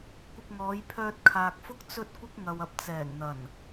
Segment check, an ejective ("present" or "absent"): absent